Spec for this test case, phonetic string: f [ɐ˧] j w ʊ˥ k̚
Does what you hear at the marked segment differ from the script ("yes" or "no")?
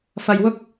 no